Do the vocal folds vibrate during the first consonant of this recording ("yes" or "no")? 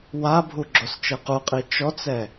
yes